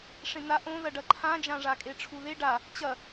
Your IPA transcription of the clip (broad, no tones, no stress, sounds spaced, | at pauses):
ʂ ẽ n̪ a ʔ õ ð ɐ ɖ ɐ ǃʰ ã d͡ʒ ã ʐ a kʼ e ʈ͡ʂʰ u ð e ɖ a | t͡ɕ ɐ